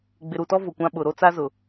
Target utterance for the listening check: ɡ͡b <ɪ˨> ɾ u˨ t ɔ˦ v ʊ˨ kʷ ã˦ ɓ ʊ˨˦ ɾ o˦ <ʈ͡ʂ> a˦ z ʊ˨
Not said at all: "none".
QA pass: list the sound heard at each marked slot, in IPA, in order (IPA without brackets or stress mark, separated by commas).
ɪ˨, t͡s